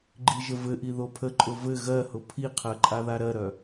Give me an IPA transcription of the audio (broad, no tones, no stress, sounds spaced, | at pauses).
ɡ͡ǃ i ʒ ə v ɘ ʔ i ð o pʰ ə ǃʼ ʊ v ɘ ɣ ɜ h ʊ pʰ i qʰ ɜ ǃʼ a ð a ɾ ɜ ɾ œ